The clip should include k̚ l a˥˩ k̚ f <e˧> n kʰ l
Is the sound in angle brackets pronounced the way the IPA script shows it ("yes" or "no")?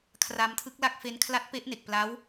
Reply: no